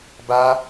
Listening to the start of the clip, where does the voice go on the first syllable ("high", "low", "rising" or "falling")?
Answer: high